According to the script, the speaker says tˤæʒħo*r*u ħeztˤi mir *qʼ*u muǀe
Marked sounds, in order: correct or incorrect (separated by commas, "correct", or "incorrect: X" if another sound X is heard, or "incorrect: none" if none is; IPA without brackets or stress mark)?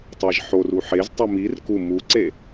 correct, incorrect: k